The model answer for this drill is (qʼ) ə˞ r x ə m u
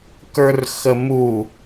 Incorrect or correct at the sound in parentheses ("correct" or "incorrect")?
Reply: incorrect